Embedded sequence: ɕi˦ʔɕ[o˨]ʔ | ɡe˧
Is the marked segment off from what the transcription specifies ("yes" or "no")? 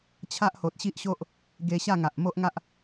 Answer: yes